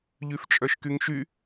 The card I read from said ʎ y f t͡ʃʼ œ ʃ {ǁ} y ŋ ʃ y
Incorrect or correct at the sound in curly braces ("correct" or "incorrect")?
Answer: incorrect